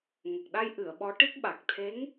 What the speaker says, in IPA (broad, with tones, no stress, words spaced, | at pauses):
ŋə˨˩k̚ɗa˧jʔɨ˨˩˨ə̯ ɓɔ˧˥ʈi˦˥k̚ ɓa˨˩k̚t̪ʰe˧˥ŋ